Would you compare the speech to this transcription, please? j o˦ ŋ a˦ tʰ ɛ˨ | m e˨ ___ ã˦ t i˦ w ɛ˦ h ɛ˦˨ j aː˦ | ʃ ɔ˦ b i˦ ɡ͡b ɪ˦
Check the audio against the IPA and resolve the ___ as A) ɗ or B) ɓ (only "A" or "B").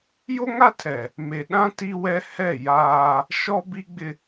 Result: A